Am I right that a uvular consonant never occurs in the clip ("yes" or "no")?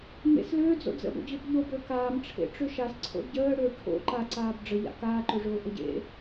yes